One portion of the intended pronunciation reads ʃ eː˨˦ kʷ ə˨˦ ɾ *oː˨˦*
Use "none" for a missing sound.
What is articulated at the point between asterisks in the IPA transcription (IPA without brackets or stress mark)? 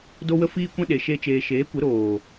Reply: oː˨